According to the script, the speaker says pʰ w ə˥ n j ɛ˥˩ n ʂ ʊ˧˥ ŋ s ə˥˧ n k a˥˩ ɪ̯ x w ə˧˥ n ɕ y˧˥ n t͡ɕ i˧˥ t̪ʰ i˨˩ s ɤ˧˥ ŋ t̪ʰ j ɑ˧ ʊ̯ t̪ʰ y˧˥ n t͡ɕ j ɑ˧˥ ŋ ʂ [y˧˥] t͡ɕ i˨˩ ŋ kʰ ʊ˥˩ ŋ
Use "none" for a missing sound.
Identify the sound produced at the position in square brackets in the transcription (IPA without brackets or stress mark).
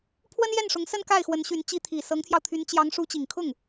u˧˥